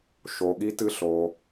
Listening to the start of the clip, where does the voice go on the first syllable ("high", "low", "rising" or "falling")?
low